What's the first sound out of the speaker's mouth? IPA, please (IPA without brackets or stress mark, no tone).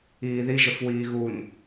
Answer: iː